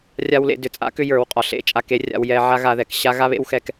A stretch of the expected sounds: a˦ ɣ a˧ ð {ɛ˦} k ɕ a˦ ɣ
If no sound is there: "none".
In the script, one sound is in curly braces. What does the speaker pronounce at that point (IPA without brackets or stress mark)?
ɛ˨